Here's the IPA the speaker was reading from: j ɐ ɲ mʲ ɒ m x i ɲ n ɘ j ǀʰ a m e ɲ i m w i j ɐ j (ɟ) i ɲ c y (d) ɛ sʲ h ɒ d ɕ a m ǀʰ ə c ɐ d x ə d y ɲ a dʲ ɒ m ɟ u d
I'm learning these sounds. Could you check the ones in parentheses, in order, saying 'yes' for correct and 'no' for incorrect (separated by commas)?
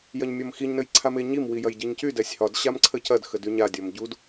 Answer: yes, yes